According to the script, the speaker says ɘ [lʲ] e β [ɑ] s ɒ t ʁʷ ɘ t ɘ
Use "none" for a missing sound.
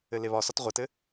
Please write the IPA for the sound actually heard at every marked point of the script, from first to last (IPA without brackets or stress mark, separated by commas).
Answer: l, ɒ